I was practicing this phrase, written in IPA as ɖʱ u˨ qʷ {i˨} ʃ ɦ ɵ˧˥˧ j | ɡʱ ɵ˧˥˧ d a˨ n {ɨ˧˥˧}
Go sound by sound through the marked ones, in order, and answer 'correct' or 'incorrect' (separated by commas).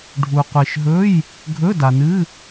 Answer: correct, correct